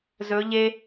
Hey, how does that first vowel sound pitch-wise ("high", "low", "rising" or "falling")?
rising